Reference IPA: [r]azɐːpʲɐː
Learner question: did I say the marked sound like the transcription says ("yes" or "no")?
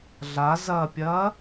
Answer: no